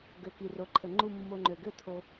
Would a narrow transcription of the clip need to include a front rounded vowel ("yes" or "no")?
yes